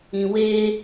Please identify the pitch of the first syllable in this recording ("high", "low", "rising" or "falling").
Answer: low